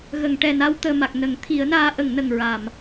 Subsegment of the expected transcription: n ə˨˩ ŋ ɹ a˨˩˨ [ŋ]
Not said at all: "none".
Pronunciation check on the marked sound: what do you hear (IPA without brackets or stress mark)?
m